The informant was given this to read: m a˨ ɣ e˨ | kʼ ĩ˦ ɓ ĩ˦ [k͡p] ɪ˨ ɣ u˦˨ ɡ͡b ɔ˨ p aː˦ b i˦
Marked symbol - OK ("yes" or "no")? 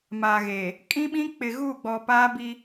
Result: yes